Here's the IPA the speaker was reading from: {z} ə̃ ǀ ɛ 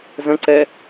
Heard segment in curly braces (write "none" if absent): z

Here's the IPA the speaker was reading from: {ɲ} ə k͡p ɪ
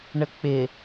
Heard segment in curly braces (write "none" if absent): ɳ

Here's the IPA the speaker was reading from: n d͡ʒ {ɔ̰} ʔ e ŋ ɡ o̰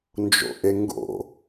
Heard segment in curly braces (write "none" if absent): o̰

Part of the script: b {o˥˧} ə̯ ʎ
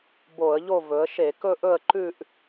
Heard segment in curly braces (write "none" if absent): o˧˩˧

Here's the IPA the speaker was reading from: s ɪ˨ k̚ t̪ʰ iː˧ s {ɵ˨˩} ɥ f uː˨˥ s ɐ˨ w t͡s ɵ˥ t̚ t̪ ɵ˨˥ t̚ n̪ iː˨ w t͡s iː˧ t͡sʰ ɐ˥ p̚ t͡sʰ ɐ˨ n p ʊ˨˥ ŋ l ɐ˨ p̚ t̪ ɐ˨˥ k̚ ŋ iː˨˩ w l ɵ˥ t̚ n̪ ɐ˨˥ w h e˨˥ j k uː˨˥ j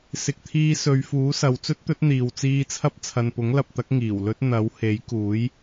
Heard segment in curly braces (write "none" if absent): ɵ˨˧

